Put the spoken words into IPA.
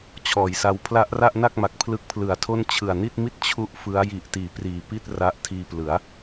t͡ɕʰ ɔː˩˦ j s a˧ w pʰ l a˦˥ ʔ r a˥˩ ʔ n a˥˩ k̚ m a˨˩ k̚ pʰ l ɯ˦˥ k̚ pʰ l ɯ˨˩ a̯ tʰ o˥˩ n t͡ɕʰ ɯ˨˩ a̯ n i˥˩ t̚ m i˥˩ t̚ t͡ɕʰ u˥˩ ʔ f ɯ˦˥ a̯ j i˨˩ ʔ t iː˩˦ p r iː˨˩ p i˥˩ t̚ r a˦˥ ʔ tʰ iː˧ p l ɯ˩˦ a̯

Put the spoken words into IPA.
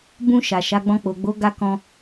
b ũ˧ ʃ a˨ ʃ a˨˦ ɡ͡b ɔ̃˧ k͡p o˨ ɡ͡b o˨˦ ɡ a˧ k ɔ̃˧

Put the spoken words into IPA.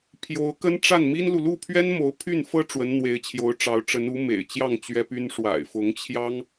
pʰ j o˧˥ ʊ̯ k ə˥ n ʈ͡ʂ a˥˩ n m i˥ n l u˨ l u˥˩ pʰ ɥ ɛ˥ n m o˧˥ ʊ̯ pʰ y˥˩ n f ɤ˥ ʈ͡ʂ w ə˧˥ n n̪ w e˧˥ ɪ̯ t͡ɕʰ j o˧˥ ʊ̯ ʈ͡ʂ ɑ˧˥ ʊ̯ ʈ͡ʂ ə˧˥ n u˧˥ m ḛ˨˩ ɪ̯ t͡ɕ j ɑ˥˩ ŋ t͡ɕ ɥ ɛ˥ p y˥ n ʂ w a̰˨˩ ɪ̯ f ʊ˧˥ ŋ t͡ɕʰ j ɑ˥ ŋ

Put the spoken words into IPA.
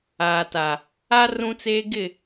aː˨ t a˨ | a˦ r ũ˦ t͡s eː˦ ɡ ɪ˦˨

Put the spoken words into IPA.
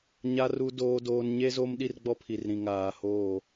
ɲ a˨ r u˨ d oː˨ d oː˨ n ɲ e˦ z o˦ m ɗ i˦ r ɡ͡b ɔ˦ pʰ i˨ r ɾ ĩ˨ ŋ aː˨ h oː˦˨

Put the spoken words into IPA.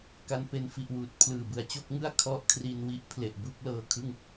k a˧ n p e˧ n f i˨˩ ʔ w uː˨˩ t̚ pʰ l ɯː˨˩ b ɯ˨˩ a̯ t͡ɕ o˥˩ k̚ ŋ ɯ˥˩ a̯ kʰ ɔ˦˥ ʔ kʰ r i˧ n w i˦˥ ʔ pʰ l e˨˩ ʔ b u˥˩ k̚ l ɤː˧ kʰ ɯ˥˩ ŋ

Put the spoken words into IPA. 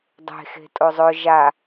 dˤ e̤ x e̤ tʼ o zˤ ɵ ʒ a

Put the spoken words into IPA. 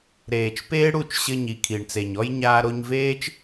ɾ eː˨ t͡ʃ p eː˦ ɽ u˦˨ t͡ʃ ɕ ɘ˧ ɲ i˨ kʰ i˨ ɳ t͡s e˨ ɲ ɔ˦ j ɲ aː˧ ɾ o˧ ɲ v eː˦ t͡ʃ

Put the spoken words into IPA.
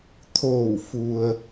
t̪ʰ oː˧˩ w f u˩ ə̯

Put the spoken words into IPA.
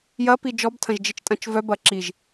j ɐ p i d͡ʒ ɔ b tʰ ɐ̃ ʒ d͡ʒ i t͡ʃ tʼ ɐ̃ t͡ʃ v œ b ɐ ǁ i ʒ

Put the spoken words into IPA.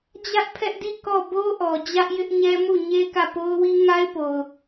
d͡ʑ ä˦ ʔ pʰ ɛ˦ ʔ d i˦˨ k ɔ˦˨ b o˦ ʔ ɔ˨ d͡ʑ ä˦ ʔ j ɪ˦ ʔ ɲ ɛ˦ m u˦˨ ɲ e˦ k ä˦˨ p o˦ ʊ̯ w i˦ ŋ a˦ ɪ̯ p o˨ ʊ̯

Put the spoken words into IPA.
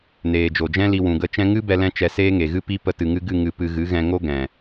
n eː˨ d͡ʒ o˨ d͡ʒ ɛ̃˦ l i˧ w ũ˨ ɡ ə˧ t͡ʃ ɛ̃˦ ŋ ɨ˦ b ɛ˧ l ɛ̃˧ t͡ʃ ɛ˨ s eː˦ ŋ e˨ ɣ ɨ˦ p i˦ p ə˧ t ɨ˨ ŋ ɨ˧ ɡ ɨ˦˨ ŋ ɨ˧ p ɨ˧ ɣ ɨ˨˦ ɣ ɛ̃˧ ŋ o˦ ɡ ɛ̃˨

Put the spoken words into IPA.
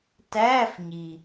t æː˧˥˧ f ɲ i˩

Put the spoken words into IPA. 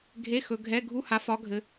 ɡʱ e˧˥˧ x ɵ˨˦ ɡʱ ɛ˧˥˧ ɡʱ u˧˥˧ h a˨˦ f ɒ˨˦ ɡʱ ɘ˨˦

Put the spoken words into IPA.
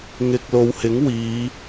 ŋ ɪ˨ k̚ l o˨ w h ɪ˨˥ ŋ w iː˨˧

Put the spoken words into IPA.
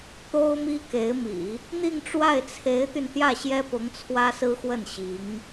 t̪ o˥ ʊ̯ m i˥ k e˧˥ ɪ̯ m ḭ˨˩˦ | n̪ i˥˧ ŋ ʈ͡ʂ w a˥˩ ɪ̯ t͡sʰ e˧˥ ɪ̯ t̪ y˧ n t̪ j ä˥˩ ɕ j ɛ˥ p ʊ˧˥ ŋ t͡sʰ w ä˥ s ɹ̩˥ x w ə˥˩ n ɕ i˧˥ ŋ

